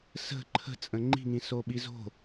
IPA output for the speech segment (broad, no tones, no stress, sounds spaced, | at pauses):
s ə̤ ǃʰ ə̤ t͡sʼ ə̃ ŋ͡ǃ i̤ ŋ ĩ s o ɓ i z o̤